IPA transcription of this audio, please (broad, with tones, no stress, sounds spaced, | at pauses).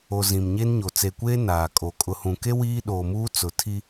o˨ z ĩ˨ m ɲ e˦ n ɲ o˨ t͡s e˨ kʷ eː˦ n aː˨ kʼ o˨ kʼ ʊ˨ h ũ˨ k e˦ w iː˦ ɗ oː˨ m uː˦ t͡s ʊ˨ tʰ i˦